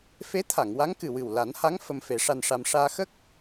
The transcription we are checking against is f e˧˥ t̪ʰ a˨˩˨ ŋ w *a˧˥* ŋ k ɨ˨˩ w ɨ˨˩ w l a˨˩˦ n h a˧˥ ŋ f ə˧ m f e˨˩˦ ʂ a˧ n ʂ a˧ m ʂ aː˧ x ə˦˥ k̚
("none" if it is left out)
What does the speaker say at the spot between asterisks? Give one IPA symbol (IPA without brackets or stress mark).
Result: a˧˥